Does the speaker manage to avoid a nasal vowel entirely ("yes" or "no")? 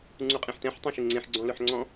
no